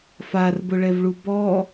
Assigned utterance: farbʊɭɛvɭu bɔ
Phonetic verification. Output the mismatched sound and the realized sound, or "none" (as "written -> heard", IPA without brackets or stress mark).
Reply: none